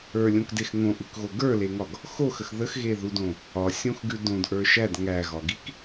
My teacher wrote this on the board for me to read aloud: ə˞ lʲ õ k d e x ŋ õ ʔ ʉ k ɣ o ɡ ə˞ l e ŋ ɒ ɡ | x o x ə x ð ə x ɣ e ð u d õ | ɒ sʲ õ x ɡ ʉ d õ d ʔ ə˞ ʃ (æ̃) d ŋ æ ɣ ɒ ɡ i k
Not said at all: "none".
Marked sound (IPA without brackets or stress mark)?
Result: æ